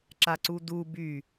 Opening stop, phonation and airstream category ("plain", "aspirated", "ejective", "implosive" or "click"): click